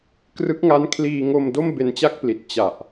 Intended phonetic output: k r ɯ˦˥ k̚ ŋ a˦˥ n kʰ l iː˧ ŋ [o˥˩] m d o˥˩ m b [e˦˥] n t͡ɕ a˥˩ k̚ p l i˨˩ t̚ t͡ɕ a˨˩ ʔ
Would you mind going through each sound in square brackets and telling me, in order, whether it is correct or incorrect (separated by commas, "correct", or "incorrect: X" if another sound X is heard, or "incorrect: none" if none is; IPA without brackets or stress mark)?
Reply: incorrect: o˧, incorrect: e˧